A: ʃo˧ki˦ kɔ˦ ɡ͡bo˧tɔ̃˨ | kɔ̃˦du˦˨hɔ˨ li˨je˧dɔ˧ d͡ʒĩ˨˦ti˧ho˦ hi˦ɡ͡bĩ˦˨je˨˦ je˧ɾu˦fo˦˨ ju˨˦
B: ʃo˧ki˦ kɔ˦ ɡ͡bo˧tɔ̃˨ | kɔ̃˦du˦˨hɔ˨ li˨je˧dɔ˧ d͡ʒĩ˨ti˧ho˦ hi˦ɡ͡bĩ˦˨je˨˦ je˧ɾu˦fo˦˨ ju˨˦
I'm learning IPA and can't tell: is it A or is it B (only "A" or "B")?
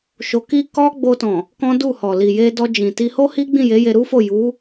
B